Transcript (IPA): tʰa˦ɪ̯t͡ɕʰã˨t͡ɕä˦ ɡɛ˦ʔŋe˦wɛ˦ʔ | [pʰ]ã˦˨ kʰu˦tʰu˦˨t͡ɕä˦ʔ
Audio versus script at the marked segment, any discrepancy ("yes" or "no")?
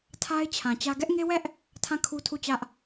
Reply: yes